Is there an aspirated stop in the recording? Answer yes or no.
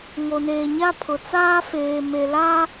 yes